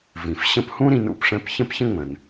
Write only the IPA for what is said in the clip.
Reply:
v ĩ˩ f ɕ ə̃˦ p h ũ˥ ɾ ĩ˦ n ṵ˨ p ʂ ɛ̃˦ p ç ə̃˥ p ç ə̃˥ ŋ͡m ə̃˨ n

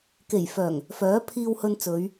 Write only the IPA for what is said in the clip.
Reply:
k e˨˩ j f œː˨˩ ŋ | f œː˨˥ pʰ iː˧ w h ɵ˧ n t͡s ɵ˨˧ ɥ

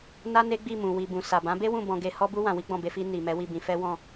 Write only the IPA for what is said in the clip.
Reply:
n a˦ n e˦ ɡ͡b i˦˨ m ũ˨ w i˨ b ũ˨ s a˨ b ã˨˦ b e˦ w ũ˦˨ b ɔ̃˧ ɡ e˧ h ɔ˦ b u˦ w ã˧ w i˦ ɡ͡b ɔ̃˦˨ b e˧ f i˧ n i˨ m ɛ˨˦ w i˦˨ b ĩ˧ f ɛ˦ w ɔ̃˦˨

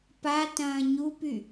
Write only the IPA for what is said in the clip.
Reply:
p a t ɐ̃ː ɲ u p y

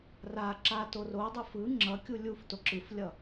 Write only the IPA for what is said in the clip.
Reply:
r a ǁ a t o r o dˤ e f ɯ ŋ͡ǁ ʌ kʲ u lʲ u f t o ǁ ɯ f lʲ ʌ

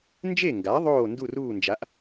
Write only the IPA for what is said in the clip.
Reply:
n d͡ʒ e˥˨ ŋ ɡ a˩˥ ðˤ oː˥˨ n d u˥˨ r uː˥˨ n d͡ʒ a˩˥ ʔ

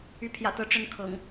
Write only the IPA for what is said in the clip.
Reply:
y˨˦ pʰ j ä̰˨˩ t̪ ɤ˨˦ ʈ͡ʂ ə˦ n kʰ ɤ̰˨˩ ŋ

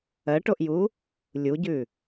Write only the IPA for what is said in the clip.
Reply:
ɜ ʈ o ʔ j u | lʲ u ɟ ʉ

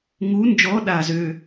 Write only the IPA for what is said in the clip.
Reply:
ŋ u˨˦ n d͡ʒ ɔ˨˦ ɗ a˧˩ z ø˧˩

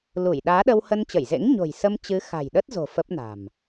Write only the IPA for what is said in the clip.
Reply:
l u˧˩ j ɗ aː˨˦ ɗ ə˧ w h ə˧ n t͡ɕ ə˧˩ j z ḛ˧˥ ŋ ɲ o̤˨˩ j s ə˧ m t͡ɕ ɨ˨˦ x a̤˨˩ j ɗ ə˦˥ t̚ z o̤˨˩ f ə˦˥ p̚ n a̤˨˩ m

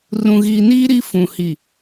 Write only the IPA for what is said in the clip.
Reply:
r ũ˨ ɣ iː˨ n iː˦ ɾ i˦ f ũ˨ h i˨

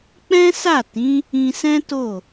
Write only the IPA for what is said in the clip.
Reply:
k͡p ɛ̃˦ s a˦˨ t ĩ˨˦ | ĩ˧ s ɛ̃˦ t o˦˨

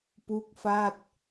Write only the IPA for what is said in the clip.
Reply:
p u˦˥ k̚ f a˥˩ t̚

